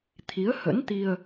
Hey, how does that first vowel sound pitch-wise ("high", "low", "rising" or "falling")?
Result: rising